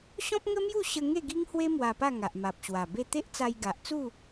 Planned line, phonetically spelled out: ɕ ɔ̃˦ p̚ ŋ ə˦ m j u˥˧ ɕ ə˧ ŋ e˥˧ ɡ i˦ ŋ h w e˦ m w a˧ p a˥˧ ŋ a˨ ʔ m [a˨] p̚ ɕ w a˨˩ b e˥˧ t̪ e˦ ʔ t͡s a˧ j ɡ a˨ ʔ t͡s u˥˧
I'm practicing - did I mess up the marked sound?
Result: no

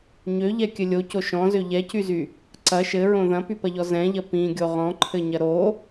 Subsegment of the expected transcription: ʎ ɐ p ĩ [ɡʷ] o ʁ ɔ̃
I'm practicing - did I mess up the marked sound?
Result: yes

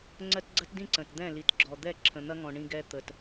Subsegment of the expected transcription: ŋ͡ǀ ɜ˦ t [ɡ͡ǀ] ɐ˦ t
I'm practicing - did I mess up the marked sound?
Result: no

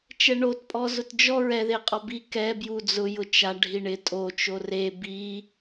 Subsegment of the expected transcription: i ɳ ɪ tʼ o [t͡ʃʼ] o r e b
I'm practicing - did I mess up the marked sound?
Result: yes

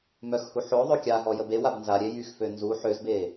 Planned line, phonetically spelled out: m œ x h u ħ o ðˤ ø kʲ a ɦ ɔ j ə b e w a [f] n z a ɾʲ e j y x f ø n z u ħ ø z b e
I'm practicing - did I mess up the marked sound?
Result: yes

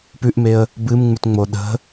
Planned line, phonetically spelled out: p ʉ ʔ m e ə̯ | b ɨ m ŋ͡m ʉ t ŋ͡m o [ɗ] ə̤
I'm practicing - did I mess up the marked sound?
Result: no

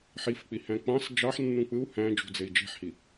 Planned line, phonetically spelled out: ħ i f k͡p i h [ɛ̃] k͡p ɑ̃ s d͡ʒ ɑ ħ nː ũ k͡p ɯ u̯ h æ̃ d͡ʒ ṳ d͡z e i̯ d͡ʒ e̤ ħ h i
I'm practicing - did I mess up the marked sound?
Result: yes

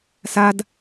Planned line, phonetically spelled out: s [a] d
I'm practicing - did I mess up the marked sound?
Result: no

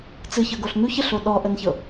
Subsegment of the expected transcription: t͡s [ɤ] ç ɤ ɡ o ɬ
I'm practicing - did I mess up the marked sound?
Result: yes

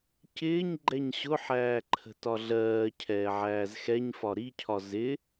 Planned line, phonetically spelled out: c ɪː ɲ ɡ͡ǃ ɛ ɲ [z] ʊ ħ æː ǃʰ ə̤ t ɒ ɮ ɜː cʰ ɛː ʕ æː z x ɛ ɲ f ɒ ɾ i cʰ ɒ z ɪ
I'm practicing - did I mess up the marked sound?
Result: yes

